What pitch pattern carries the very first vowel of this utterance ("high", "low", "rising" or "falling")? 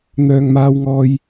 low